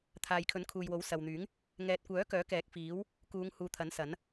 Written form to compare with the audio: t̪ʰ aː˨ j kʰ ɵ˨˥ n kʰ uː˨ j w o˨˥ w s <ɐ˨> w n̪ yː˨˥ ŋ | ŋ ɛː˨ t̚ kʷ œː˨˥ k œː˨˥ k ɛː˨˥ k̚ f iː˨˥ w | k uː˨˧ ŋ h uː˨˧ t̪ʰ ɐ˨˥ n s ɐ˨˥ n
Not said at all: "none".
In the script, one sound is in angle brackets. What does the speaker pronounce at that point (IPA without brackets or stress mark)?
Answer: ɐ˨